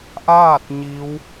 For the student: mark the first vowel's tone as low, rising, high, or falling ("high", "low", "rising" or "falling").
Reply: falling